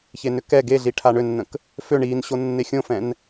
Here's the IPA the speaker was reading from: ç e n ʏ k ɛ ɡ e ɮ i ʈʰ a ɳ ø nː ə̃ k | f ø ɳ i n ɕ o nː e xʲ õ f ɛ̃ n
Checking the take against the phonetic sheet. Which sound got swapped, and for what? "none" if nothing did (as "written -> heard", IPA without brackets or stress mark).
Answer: none